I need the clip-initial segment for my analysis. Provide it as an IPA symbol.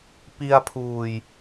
p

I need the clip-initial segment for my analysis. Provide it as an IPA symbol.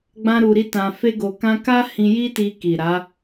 ɡ͡b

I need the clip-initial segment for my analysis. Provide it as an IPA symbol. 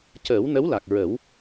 c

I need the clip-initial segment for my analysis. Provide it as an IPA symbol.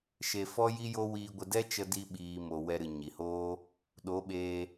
ʃ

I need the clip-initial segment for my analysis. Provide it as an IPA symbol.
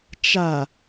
t͡ʃ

